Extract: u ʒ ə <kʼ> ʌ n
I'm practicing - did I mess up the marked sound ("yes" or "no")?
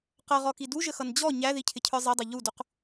yes